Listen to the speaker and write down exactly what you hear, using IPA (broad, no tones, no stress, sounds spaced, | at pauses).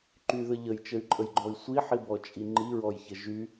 ǃ y ð ə ʎ ə j t͡ʃ ə y̯ ǃʼ ə j ɡ͡ǃ ɔ i̯ sʷ i ħ i b ɔ t͡ʃʼ i ŋ͡ǃ i ɹ ɔ j ç ə ʒ y